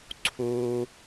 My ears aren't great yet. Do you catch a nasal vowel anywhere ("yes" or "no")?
no